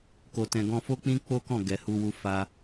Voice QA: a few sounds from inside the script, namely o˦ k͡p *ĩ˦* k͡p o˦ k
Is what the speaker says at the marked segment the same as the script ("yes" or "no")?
yes